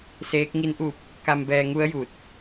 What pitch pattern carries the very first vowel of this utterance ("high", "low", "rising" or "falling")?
rising